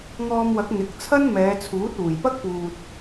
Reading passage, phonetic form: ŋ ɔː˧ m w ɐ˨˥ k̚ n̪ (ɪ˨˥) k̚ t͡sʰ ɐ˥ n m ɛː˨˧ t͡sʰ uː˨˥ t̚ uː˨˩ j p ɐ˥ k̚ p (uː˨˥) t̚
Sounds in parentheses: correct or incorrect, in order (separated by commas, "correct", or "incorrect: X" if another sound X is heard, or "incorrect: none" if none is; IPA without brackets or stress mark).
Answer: correct, incorrect: uː˨